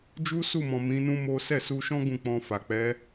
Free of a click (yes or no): yes